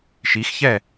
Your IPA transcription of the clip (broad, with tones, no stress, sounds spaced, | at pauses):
ʃ i˨˦ x ç ɛ˥˨